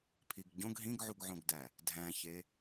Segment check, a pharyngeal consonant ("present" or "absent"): present